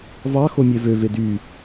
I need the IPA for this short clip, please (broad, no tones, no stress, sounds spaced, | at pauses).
v ɑ x o mʲ e v ø v e d y